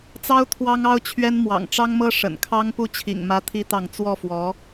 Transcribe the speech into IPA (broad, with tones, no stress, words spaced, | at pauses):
t͡sɑ˥ʊ̯ t̪ʰwɑ˥ŋɑ˥ʊ̯t͡ɕʰɥɛ˥n mwɑ̰˨˩ŋʈ͡ʂɑ˥ŋmɤ˥ ʂə̰˨˩nkʰɑ˥ŋ pu˥˩t͡ɕʰḭ˨˩ŋ mä˥t̪ʰi˥t̪ɑ˥˧ŋ t͡swɔ˥˩ fwɔ˧˥